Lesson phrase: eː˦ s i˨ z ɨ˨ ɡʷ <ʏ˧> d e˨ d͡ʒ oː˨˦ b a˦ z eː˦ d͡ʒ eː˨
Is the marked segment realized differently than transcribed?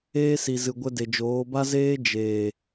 yes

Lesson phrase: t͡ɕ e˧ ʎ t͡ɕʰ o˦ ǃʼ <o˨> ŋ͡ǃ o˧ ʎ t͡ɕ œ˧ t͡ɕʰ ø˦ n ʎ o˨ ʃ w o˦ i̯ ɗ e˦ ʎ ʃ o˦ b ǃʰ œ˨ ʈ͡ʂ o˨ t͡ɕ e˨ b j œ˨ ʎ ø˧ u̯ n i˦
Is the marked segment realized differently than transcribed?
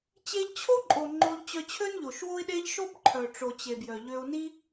no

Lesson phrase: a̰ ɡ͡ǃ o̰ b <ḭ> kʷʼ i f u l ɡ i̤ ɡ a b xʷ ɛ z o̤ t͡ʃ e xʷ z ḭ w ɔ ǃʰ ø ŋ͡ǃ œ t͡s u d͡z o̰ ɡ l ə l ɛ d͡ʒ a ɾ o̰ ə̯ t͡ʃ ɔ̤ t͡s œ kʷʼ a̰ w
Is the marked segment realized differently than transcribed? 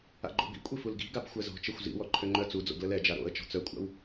no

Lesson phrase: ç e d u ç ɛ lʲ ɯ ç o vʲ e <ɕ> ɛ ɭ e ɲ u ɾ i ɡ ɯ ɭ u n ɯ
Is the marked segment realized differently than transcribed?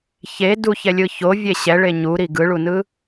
no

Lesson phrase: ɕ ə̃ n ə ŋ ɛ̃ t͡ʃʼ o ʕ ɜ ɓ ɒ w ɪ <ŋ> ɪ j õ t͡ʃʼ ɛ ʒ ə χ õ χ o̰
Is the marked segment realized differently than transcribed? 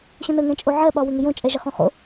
no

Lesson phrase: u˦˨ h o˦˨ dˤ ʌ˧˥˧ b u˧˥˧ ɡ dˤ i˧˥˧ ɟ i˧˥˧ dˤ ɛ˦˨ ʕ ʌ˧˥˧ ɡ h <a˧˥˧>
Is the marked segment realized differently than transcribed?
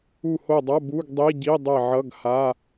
no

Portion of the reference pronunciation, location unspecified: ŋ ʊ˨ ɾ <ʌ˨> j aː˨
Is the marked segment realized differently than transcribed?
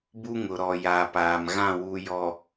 yes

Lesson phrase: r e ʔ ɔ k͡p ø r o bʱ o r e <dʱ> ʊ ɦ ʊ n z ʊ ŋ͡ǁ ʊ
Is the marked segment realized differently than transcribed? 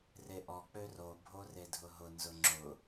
no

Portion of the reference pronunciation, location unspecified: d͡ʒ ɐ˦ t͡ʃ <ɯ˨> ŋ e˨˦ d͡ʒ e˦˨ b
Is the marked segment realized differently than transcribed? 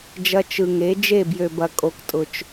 no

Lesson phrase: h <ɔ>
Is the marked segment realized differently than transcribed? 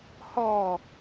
no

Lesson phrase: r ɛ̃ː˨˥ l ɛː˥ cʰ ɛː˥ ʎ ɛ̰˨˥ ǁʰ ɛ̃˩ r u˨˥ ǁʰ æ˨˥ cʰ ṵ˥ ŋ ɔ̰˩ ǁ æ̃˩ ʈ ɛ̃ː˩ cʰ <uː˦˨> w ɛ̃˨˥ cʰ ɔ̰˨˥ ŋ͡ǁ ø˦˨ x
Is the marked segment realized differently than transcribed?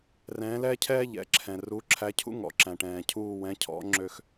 no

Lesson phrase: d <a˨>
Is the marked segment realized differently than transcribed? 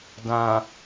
yes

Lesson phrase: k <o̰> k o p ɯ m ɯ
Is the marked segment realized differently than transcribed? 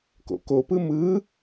no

